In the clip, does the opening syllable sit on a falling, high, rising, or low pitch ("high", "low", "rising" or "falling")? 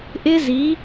high